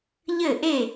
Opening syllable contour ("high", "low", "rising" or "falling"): falling